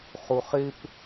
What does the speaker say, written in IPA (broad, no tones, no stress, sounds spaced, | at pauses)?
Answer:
χ u χ ɪ p